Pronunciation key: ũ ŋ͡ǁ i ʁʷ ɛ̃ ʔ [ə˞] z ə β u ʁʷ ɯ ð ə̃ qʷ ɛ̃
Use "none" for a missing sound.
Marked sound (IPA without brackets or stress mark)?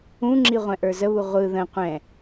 ə˞